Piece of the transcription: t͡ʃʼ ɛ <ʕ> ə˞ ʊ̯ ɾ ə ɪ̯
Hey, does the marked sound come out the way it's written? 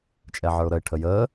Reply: yes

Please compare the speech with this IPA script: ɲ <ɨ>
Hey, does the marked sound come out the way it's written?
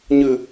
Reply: yes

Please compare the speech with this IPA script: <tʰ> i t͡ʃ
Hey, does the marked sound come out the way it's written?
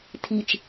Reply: yes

